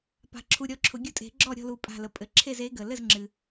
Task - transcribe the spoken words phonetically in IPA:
p a̤˨˩˦ ǁʰ u˧˩ ɾʲ ɔ˥˩ ǁʰ ʊ˨˩˦ ɡʲ ʊ˧˥ tʼ e̤˨˩˦ ɡ͡ǁ ɔ˥˩ ɾʲ ɔ̤˥˩ l u˧˩ pʼ a̤˧˩ l ə˩ pʼ ɘ˨˩˦ ǁʰ e˥˩ z e˧˥ ɡ ə˩ l ɘ˥˩ z ŋ͡ǁ ɨ˩

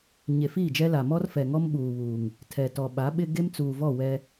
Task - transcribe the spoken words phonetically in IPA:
ɲ e˨ f iː˦˨ d͡ʒ ɛ˦ l a˨ m ɔ˦ r f ɛ˨ ŋ ɔ˦ m ɓ uː˨ β uː˨ ŋ | tʰ ɛ˨ t ɔ˨ ɓ a˨˦ ɓ ɪ˦ ɡ e˦ m t͡s uː˨ v ɔ˦˨ w ɛ˦

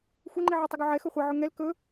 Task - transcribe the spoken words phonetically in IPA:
xʷ ɛ ŋ͡ǃ i ʕ ɛ tˤ ɵ ɡ o ʕ ɛ x ɵ χʷ ɛ ʕ ɵ ŋ ɛ l k ɵ

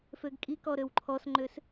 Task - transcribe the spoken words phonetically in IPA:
f ø ɡ kʼ i k ɔ ɾ ø w ǃʰ ɔ s ŋ͡ǃ ø s

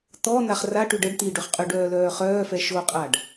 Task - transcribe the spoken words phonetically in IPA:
t̪ ɔ n̪ a χ r a ʈ y ɖ ə ɖ t̪ i ɖ ø χ qʼ y ɖ œː l œː χ œː f ɛ ʃ o qʼ a ɖ

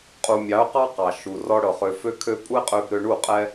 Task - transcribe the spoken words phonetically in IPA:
qʼ u˨ mʲ ɑ˨˦ ʊ̯ q ɑ˦ q ɑ˨ ʃ u˨ r ɔ˧ ɽ ɤ˨ χ ø˨ f ø˧ kʰ ø˧ pʼ u˦ ɪ̯ qʼ ø˧ b ɾ ø˧ ɳ u˦˨ qʼ ɛ˦

